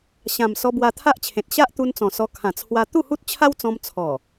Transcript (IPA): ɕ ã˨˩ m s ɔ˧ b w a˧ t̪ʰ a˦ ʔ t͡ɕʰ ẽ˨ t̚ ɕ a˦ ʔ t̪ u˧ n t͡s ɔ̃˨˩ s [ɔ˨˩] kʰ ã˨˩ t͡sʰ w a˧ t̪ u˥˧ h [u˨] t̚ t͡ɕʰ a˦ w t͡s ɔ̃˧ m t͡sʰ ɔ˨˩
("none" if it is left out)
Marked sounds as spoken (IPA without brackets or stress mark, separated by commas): ɔ˧, u˦